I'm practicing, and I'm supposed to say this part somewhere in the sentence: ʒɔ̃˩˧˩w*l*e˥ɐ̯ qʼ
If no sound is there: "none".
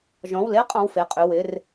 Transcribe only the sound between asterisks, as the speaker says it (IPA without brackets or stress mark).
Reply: l